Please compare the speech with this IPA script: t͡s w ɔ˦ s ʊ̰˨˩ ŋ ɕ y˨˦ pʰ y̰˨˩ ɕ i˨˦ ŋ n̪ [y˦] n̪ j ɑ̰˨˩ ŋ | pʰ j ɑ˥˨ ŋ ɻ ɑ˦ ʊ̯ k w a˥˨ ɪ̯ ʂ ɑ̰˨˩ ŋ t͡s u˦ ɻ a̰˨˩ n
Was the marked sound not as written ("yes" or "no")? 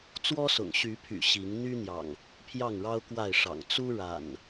no